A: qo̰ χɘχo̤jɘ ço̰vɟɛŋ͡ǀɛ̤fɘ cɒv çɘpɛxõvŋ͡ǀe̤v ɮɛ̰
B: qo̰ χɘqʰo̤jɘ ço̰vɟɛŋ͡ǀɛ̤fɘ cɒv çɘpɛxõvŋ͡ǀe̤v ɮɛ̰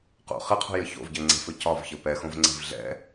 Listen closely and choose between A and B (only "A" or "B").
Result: B